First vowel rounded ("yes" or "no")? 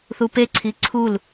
yes